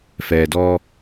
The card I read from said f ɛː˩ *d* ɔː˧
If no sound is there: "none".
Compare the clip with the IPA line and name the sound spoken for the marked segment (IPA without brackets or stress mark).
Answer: d